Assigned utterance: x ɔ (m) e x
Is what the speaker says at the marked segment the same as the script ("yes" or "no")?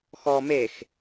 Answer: yes